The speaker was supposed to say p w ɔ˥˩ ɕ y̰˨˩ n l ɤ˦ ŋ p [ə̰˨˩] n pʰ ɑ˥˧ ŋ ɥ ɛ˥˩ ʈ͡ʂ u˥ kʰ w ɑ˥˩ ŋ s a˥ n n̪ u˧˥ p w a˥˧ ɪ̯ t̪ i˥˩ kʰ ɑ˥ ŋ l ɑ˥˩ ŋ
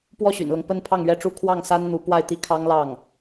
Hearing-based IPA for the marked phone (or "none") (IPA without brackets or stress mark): ə˥